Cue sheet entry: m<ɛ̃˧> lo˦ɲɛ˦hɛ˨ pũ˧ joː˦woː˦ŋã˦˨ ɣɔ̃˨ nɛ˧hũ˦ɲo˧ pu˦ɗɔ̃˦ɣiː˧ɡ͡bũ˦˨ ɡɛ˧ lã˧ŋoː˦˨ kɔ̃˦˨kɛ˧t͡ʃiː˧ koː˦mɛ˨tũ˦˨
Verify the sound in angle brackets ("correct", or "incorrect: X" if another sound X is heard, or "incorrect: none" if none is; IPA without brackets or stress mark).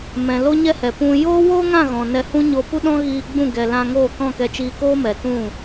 incorrect: ɛ̃˨